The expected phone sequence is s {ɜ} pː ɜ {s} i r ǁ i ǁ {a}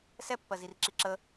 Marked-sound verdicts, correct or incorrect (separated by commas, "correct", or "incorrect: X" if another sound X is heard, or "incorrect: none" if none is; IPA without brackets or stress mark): incorrect: ɛ, incorrect: z, incorrect: ə